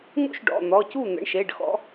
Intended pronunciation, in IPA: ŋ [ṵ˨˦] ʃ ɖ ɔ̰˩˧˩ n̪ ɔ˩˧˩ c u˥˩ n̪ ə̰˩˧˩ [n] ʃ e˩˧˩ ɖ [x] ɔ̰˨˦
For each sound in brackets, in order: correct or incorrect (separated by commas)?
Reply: incorrect, incorrect, correct